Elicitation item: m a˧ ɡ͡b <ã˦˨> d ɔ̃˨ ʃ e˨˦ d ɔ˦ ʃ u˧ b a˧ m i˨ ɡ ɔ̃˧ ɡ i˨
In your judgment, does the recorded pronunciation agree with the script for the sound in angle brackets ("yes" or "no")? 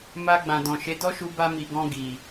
no